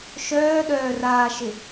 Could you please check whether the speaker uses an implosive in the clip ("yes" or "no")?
yes